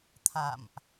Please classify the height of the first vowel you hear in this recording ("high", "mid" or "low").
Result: low